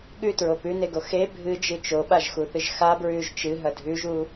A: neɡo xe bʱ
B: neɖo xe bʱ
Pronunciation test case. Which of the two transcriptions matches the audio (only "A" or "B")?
A